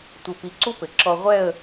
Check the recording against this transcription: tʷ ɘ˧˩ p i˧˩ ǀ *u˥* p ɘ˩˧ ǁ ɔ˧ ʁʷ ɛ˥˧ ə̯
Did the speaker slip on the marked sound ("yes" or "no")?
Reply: no